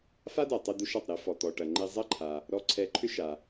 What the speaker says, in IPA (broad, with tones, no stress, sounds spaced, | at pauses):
f a˥ d a˩ tˤ e˧ d̪ u˧ ʃ ɑ˩ tˤ ɾ e˧ f ɔ˩ t̪ ɔ˩ ʈ ɐ˩ ŋ͡ǃ e˧ zˤ ɐ˥ ǃʰ a˩ | ɾ ɔ˧ ǀʰ ɛ˧ ǃʰ ʏ˥ ʃ a˩